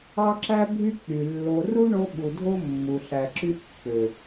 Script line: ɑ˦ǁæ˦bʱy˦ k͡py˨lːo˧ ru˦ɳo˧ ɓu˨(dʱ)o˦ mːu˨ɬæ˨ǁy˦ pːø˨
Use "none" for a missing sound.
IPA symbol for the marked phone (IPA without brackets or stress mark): dʱ